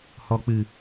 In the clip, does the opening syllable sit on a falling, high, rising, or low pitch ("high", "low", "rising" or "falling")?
low